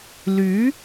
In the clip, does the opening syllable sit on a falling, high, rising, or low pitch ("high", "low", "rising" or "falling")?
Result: rising